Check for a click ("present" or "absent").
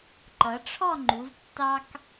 present